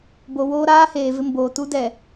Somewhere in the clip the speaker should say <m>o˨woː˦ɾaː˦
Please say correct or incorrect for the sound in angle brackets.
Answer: incorrect